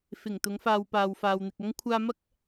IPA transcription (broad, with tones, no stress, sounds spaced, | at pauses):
f ɪ˨˩ ŋ t̪ ʊ˨˧ ŋ f aː˨ w p aː˨ w f aː˨ w n̪ ɪ˨ k̚ ɐ˥ ŋ kʷʰ aː˧ m ɐ˥ k̚